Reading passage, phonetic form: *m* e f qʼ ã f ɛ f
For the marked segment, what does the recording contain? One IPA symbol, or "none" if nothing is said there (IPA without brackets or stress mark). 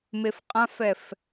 m